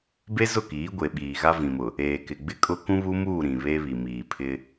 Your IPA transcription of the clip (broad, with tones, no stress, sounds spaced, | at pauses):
b e˦ z ʊ˦˨ k iː˨˦ ɡʷ e˨ ɓ iː˨ ɣ a˦ v ĩ˨ m ʊ˨ | eː˨ k ɪ˨ ɡ͡b ɪ˦ kʼ ʊ˦ k ũ˦ β u˦ m uː˦˨ ɾ ĩ˨ β e˦ β i˨ m iː˨ pʰ ɪ˦